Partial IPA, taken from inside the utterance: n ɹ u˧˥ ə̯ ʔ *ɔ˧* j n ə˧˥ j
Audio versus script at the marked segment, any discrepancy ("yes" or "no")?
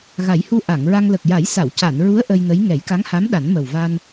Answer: yes